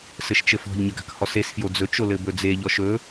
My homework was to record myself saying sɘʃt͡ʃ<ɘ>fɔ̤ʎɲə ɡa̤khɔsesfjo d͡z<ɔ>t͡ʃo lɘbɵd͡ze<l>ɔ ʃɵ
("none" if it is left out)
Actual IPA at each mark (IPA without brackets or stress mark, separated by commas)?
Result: ɘ, ɵ, ʎ